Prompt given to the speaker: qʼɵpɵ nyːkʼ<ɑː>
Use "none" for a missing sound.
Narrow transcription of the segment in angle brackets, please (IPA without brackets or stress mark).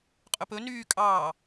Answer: ɑː